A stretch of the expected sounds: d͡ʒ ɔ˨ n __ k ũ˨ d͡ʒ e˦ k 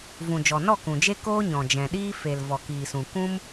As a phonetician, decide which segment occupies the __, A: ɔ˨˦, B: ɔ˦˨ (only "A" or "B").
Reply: B